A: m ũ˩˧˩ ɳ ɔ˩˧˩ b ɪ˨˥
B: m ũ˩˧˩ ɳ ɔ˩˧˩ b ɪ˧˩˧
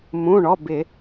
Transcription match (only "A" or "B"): B